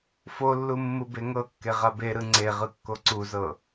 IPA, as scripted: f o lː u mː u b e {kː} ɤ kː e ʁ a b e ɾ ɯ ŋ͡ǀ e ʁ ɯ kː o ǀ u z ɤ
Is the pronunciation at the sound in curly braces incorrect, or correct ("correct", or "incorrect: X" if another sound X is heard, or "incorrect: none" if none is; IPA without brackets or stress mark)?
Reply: incorrect: ŋ